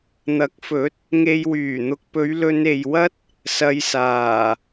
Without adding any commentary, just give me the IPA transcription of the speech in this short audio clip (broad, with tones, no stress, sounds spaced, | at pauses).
n̪ ɐ˨˥ k̚ f ɵ˨˥ t̚ | ŋ e˨ j w yː˨˩ n̪ ʊ˨ k̚ p ɵ˨˧ ɥ l ɵ˧ n e˨ j w ɐ˥ t̚ | s ɐ˧ j s aː˨˩